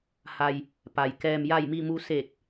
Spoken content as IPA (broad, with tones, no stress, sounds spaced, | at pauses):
h a˩ j | p a˩ j k ɛː˩ m j a˧˩ j m i˧˩ m u˩˧ s eː˧˩ k̚